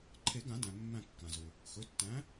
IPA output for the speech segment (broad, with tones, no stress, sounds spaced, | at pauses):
ǃʰ e˨˩˦ ɡ ã˨˩˦ d æ̃˩ mː æ̃˧˩ kː ã˩ z ʊ˩ | x ɵ˩˧˩ tː æ̃˨˥